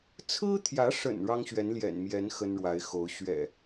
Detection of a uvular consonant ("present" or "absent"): absent